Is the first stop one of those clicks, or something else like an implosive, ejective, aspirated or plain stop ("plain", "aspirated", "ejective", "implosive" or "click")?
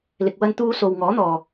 plain